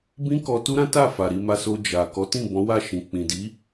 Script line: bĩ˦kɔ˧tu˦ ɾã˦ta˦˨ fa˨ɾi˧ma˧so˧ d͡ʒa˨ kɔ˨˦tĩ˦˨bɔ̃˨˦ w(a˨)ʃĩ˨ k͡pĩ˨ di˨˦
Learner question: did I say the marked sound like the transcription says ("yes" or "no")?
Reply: no